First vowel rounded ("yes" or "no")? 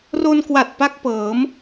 yes